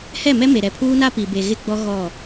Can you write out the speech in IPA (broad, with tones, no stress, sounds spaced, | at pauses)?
h ɛ˦˨ m ɛ˦ m e˨ ɾ ɛ˨ pʰ uː˦ n a˦ p i˨ b e˨ ɣ ɪ˦ ɡ͡b ɔ˦ ɣ ɔ˦˨